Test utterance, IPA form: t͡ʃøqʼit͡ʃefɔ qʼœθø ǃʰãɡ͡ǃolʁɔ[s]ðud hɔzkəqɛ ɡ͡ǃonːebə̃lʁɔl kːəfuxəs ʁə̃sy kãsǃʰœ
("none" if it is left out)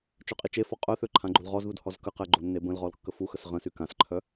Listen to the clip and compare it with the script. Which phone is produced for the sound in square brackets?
z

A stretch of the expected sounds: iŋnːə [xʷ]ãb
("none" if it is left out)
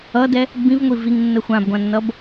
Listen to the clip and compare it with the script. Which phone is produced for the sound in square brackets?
xʷ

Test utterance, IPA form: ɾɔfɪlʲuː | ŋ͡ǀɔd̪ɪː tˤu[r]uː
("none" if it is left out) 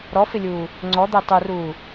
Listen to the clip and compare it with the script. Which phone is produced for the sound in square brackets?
r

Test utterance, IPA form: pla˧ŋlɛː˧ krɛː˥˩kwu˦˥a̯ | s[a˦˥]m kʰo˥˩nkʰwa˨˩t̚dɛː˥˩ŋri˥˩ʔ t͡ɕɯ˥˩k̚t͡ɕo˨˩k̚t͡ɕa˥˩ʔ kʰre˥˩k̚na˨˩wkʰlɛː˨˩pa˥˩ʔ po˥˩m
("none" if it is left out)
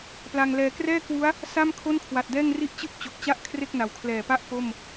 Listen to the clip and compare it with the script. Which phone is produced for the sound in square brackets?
a˥˩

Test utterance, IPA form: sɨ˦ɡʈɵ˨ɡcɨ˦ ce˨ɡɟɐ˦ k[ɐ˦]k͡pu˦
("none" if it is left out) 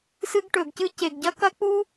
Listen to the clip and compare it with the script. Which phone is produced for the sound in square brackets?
ɐ˦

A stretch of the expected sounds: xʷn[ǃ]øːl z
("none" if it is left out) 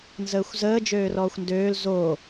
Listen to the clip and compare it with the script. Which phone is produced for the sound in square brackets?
d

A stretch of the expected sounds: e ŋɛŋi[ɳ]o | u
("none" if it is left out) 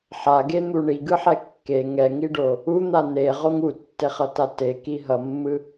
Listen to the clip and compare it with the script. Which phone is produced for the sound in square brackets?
ɖ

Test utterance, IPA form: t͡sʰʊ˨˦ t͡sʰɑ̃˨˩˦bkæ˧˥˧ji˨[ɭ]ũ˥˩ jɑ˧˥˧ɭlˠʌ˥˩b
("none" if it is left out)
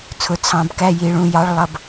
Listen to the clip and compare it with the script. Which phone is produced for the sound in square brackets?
ɭ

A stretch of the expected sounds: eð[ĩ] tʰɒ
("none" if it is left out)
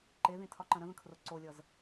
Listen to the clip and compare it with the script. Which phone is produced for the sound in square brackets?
ĩ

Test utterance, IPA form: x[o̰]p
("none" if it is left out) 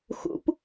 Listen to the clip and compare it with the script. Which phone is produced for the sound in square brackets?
ṵ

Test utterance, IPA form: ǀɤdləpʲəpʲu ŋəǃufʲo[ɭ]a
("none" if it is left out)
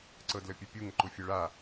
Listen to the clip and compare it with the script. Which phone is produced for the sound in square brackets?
ɭ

